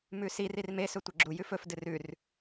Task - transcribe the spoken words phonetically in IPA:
m ʉ s i r i r m e s ɵ tʷ e ɡ͡ǁ u j ʉ f ɵ f d ɨ r ʉ r

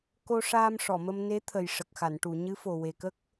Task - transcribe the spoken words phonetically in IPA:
k o˧ ʂ aː˧ m ʂ ɔ˨˩˨ m ə˧ m n e˧˥ t̪ʰ ə˨˩ j ʂ ə˨˩ k̚ x a˨˩˨ n ʈ u˨˩˨ ɲ ɨ˧˥ f o˨˩ w e˨˩ k ə˦˥ k̚

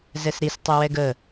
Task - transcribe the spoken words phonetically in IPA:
z ɛ s ɾ i s tˤ ʉ w ɛ ɡ ə

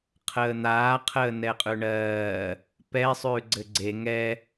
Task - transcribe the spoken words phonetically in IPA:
qʰ əː n̪ aː qʰ əː n ɛ qʼ ʉ ɳ ɜː | p ɛ sˤ ʉː ɡ͡ǀ ɘ ɡ͡ǀ e ŋ ɛ

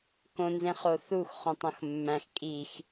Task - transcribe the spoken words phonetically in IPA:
k õ n z ẽ χ o θ u x χ õ tˤ õ x mː æ̃ x kʼ i x

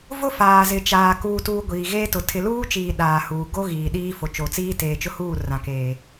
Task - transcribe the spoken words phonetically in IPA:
v ʊ˦ f aː˨ z ɪ˨ t͡ʃ aː˨ k uː˨ t uː˨ ɡʷ iː˨ ɣ eː˦ t ʊ˨ tʰ ɪ˨ l uː˦ t͡ʃ iː˨ ɗ aː˨ h uː˨ ɡ o˦ ɣ iː˨ ɗ iː˦ f o˨ t͡ʃ o˨ t͡s iː˦ t eː˨ t͡ʃ ʊ˦ h uː˦˨ r ã˨ k eː˨

